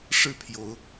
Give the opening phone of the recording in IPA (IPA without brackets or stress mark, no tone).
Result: ʂ